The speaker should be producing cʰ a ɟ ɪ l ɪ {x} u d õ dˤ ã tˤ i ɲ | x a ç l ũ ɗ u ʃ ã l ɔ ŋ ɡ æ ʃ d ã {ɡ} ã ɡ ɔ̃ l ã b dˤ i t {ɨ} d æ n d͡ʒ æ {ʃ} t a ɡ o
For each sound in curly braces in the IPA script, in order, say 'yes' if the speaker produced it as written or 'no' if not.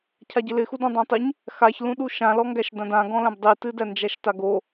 yes, no, yes, yes

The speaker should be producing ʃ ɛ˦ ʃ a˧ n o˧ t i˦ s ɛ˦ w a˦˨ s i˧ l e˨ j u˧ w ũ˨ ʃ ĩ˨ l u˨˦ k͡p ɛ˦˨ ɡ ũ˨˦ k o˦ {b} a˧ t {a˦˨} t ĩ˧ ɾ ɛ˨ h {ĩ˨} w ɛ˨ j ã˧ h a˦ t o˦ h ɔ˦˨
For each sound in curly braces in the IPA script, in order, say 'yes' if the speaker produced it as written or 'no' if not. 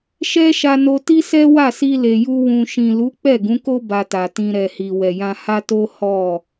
yes, no, no

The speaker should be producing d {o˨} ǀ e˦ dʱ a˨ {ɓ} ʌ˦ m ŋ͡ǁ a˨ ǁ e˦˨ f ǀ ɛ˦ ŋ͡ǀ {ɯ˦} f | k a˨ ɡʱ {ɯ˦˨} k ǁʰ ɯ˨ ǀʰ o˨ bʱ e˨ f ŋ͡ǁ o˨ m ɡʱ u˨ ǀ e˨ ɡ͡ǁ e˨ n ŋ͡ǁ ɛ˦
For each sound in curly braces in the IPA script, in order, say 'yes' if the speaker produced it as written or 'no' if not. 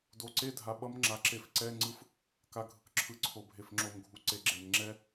yes, yes, yes, no

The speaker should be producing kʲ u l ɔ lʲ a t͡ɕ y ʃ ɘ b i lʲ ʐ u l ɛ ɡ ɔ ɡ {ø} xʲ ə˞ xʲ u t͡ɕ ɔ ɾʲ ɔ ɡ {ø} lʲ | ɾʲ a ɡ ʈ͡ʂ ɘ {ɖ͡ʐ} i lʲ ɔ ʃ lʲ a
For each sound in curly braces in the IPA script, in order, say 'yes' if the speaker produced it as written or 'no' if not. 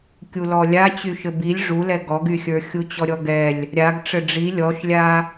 no, no, yes

